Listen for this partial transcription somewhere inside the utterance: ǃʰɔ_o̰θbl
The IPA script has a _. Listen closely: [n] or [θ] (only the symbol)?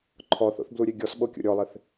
θ